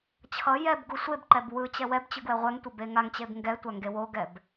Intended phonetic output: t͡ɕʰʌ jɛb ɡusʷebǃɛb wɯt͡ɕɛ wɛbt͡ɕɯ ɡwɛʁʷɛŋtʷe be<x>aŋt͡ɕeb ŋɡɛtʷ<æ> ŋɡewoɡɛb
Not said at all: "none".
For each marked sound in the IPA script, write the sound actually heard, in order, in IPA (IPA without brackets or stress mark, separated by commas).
ŋ, a